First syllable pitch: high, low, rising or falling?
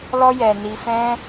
high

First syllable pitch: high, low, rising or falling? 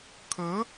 rising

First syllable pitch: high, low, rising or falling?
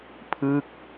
falling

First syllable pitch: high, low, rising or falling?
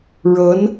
rising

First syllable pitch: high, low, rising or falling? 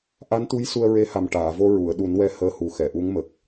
rising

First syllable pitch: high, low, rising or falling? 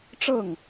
falling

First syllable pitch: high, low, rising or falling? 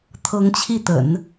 rising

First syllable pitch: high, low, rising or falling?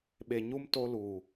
low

